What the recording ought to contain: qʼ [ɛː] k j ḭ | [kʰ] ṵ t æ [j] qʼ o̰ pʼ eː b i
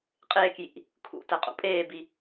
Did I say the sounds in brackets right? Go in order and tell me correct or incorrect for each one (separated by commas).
incorrect, correct, incorrect